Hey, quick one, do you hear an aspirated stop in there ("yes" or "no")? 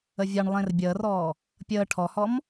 yes